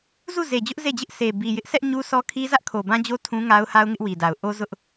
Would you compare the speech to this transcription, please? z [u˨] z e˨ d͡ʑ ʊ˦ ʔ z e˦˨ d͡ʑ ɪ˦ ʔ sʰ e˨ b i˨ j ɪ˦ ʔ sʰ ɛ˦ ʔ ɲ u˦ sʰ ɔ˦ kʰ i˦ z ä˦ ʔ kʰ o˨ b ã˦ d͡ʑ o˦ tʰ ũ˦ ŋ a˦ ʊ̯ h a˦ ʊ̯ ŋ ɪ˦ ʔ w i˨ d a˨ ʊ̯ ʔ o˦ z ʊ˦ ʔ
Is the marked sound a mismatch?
yes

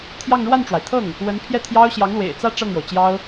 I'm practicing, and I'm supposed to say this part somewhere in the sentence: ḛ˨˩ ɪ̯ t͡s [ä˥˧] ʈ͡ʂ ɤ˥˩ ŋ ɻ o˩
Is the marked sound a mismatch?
no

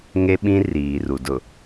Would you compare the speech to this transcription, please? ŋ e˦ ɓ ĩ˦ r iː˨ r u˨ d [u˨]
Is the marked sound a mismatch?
yes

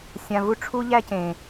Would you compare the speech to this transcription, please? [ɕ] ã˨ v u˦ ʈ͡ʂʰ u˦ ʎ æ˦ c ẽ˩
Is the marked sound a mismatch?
yes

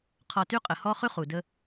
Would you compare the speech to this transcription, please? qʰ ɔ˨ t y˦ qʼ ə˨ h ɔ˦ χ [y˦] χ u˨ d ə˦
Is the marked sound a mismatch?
no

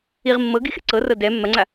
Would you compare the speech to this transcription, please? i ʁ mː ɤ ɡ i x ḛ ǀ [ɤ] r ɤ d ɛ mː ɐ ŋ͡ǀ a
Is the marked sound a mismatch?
no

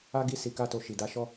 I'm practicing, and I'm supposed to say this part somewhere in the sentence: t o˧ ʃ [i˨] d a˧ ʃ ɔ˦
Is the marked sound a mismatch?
no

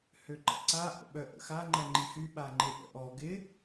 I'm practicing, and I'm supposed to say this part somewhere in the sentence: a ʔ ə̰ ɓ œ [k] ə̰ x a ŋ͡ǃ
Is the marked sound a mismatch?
yes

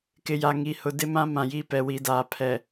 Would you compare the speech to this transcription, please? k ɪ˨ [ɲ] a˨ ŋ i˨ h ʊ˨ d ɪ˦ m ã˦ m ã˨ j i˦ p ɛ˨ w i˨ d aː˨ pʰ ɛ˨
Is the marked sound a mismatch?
yes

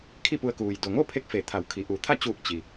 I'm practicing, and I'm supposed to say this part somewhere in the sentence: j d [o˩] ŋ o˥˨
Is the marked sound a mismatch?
no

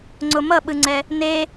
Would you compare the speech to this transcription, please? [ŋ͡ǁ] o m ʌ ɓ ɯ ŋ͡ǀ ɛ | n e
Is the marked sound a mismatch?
yes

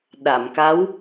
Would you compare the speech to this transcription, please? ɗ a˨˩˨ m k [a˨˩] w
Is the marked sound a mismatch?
yes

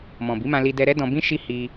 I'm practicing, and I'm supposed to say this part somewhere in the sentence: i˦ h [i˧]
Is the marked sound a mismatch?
no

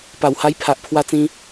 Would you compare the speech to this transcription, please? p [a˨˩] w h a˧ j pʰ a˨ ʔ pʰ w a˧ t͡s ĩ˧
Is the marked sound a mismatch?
no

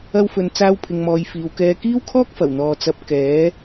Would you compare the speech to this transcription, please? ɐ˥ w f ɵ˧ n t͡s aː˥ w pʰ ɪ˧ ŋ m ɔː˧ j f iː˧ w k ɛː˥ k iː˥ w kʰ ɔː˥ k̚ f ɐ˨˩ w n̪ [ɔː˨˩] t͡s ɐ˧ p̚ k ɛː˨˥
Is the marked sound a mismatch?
yes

